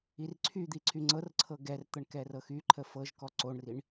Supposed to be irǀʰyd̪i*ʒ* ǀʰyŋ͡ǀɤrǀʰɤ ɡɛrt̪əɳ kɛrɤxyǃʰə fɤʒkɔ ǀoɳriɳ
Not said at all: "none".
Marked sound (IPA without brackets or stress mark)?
none